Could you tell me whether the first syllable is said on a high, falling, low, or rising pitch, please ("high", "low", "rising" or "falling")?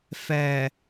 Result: low